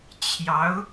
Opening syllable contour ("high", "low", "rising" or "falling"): rising